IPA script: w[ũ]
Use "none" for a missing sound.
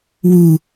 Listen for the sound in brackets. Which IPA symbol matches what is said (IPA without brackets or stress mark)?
u